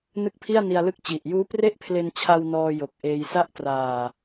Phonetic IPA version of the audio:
n ɯ˦˥ k̚ pʰ i˥˩ a̯ n i˧ a̯ l ɯ˦˥ k̚ t͡ɕ i˨˩ ʔ j uː˦˥ p r e˥˩ ʔ pʰ l e˧ n t͡ɕʰ a˧ w n ɔː˧ j o˨˩ k̚ ʔ eː˧ j s a˥˩ ʔ t r aː˨˩

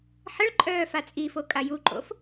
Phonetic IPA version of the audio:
ħ ə ɭ ǃʼ œː f a t͡sʼ i f o kʼ a j u ǃʼ o̰ f

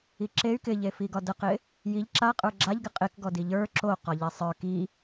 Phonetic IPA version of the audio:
i ǁ e y̯ k ɪ ʎ e f i ɡ ɒ d ə q ɪ | j i ʎ ǁ a qʼ ə˞ ɡ͡ǁ a ʎ ɡ ɪ qʼ ɪ k ɡ ɔ d i ʎ ə˞ ǁ o q ɒ ʎ e sˤ ə˞ k i

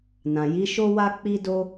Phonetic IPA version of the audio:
n ã˨ j i˨˦ ʃ o˦ w a˦ k͡p i˦ d o˦

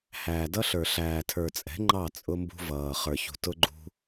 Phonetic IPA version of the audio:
h æː˨ d ʌ˦ ɬ ə˞˨ ɬ æː˨ tʰ ə˞˨ t͡sʼ ɛ̤˨˦ ŋ͡ǃ ɑ˦˨ t͡sʼ ʊ˦ m b ṳ˦ v ʌː˨ χ ə˞˨ ç ṳ˨ t ʊ˦ ɡ͡ǃ ṳ˦

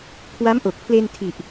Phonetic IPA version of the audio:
kʰ w a˦˥ m ʔ o˨˩ k̚ pʰ l e˧ n tʰ i˨˩ ʔ

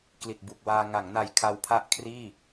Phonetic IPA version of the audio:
k l i˨˩ t̚ b u˨˩ k̚ w aː˧ ŋ a˩˦ ŋ n a˨˩ j kʰ a˧ w pʰ a˥˩ ʔ kʰ r iː˥˩

